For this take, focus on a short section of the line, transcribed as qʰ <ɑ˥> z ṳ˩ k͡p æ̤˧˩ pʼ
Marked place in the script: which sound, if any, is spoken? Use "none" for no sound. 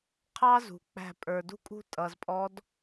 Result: ɑ˥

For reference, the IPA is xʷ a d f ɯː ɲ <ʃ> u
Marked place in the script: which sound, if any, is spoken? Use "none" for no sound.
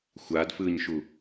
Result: ʃ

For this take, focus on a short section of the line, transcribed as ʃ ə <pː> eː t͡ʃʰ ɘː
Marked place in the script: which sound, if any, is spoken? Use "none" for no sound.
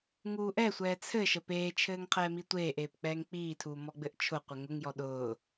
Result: p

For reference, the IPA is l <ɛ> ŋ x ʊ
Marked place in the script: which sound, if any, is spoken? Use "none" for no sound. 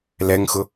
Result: ɛ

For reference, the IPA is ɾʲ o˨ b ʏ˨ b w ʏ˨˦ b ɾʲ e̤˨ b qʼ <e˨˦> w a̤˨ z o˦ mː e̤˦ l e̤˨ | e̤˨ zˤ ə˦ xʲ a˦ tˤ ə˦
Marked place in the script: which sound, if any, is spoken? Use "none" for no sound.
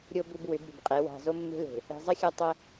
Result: e˨˦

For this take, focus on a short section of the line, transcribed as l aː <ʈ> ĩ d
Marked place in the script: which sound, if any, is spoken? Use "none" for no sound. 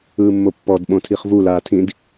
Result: tʰ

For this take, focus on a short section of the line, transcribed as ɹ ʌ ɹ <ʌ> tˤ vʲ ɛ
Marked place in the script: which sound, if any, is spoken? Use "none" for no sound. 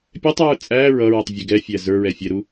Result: ʌ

